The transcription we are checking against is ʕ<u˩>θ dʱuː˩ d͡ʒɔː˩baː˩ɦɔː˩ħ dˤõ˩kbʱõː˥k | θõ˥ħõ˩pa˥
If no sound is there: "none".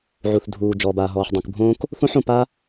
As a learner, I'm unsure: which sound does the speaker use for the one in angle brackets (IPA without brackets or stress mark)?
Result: u˩